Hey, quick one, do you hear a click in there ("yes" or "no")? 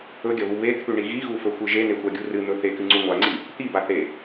yes